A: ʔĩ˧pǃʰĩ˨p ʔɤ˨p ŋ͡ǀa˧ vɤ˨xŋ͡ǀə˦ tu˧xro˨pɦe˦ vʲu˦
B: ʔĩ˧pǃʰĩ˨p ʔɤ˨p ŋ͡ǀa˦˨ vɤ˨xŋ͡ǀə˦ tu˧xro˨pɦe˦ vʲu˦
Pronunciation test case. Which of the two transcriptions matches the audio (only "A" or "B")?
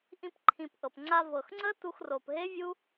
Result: A